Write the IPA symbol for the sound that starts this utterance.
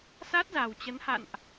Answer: s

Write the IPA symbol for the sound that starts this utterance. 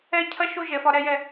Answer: ɛː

